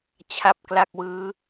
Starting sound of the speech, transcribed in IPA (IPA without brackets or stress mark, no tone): t͡ɕʰ